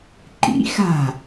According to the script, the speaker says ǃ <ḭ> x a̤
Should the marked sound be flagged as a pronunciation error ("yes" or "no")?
no